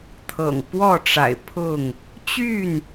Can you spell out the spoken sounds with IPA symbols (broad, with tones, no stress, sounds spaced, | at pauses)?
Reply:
t̪ʰ ɤ̰˨˩ ŋ p w ɔ˥˨ ʈ͡ʂ a̰˨˩ ɪ̯ pʰ ʊ˥˨ ŋ | t͡ɕ y˥˨ n